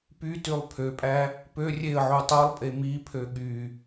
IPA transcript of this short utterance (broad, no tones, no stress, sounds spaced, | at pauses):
p y t y lˠ pʰ ø pʼ æ | p ø rʲ e ə̯ ʕ u tˤ o lˠ pʼ e m i pʰ ø ɠ y